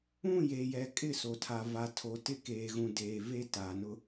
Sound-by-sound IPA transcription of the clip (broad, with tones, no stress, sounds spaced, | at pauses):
ũ˦˨ j eː˨ j ɛ˨ kʼ ɪ˦˨ s o˨ tʰ a˨ v a˨ tʰ o˨ t ɪ˦˨ k eː˨ ɣ ũ˨ d eː˨ v e˦ t aː˨ n ʊ˦